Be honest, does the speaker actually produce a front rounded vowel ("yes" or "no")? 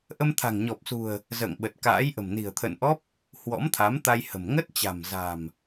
no